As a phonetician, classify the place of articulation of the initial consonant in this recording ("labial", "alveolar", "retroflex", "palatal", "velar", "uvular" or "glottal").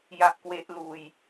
palatal